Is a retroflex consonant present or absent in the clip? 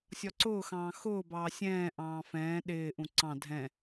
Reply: absent